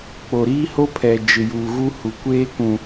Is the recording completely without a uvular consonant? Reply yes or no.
yes